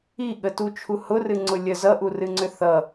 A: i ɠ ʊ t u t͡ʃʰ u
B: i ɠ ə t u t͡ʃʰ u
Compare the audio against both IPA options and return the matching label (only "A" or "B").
B